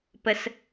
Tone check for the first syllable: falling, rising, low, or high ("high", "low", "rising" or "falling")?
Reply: low